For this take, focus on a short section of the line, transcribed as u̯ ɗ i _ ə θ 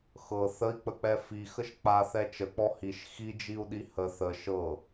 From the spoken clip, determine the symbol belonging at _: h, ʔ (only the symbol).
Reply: h